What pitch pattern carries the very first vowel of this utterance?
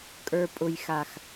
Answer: low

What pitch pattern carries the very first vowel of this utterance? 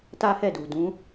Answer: high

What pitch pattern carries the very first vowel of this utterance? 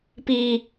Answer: low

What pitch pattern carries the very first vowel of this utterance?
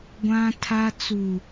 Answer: high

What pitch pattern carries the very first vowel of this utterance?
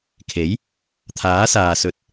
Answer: rising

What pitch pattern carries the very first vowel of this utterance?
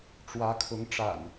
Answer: rising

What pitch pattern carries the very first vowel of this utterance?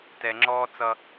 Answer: low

